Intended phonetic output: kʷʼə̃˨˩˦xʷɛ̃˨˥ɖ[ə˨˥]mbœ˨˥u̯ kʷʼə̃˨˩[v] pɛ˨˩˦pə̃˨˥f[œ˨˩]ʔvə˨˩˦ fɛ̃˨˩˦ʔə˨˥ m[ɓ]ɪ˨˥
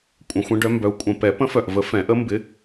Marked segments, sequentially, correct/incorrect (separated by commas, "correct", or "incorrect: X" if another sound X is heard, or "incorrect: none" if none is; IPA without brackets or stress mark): incorrect: œ˨˥, incorrect: none, correct, incorrect: b